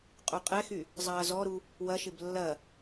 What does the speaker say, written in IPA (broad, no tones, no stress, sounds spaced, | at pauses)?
qʼ u qʼ ɛ x y | zˤ ɐː z ɔ ɾ u | w ɐ ʃ ɪ b lː ɐ